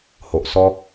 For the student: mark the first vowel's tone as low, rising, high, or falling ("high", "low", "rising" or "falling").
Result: low